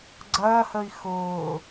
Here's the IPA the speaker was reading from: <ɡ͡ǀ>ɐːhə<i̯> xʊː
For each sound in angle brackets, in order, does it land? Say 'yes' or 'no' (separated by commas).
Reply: yes, yes